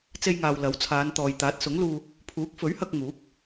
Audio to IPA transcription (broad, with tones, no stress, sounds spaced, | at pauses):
t͡s e˧ j ŋ aː˨ w l ɐ˨˥ w t͡sʰ aː˨˧ n t̪ ɔː˨ j t̪ aː˨˥ t̚ s ʊ˨˥ ŋ l uː˧ | pʰ uː˨˥ k̚ f ɵ˨˥ ɥ h ɐ˧ k̚ ŋ uː˨˥ k̚